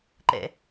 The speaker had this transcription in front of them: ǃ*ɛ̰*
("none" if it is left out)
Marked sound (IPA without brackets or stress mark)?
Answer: ɛ̰